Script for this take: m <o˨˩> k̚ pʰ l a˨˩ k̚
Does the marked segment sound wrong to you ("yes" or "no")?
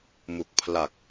yes